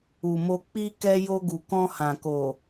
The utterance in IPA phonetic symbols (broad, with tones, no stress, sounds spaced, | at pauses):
u˨ m o˧ k͡p i˧ k ɛ˧ j o˧ ɡ u˨ k ɔ̃˧ h ã˨ k o˨